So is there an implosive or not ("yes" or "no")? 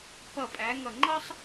no